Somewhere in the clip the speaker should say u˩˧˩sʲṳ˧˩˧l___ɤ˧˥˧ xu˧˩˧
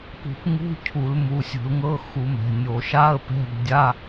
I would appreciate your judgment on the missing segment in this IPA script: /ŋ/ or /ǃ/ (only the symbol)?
ŋ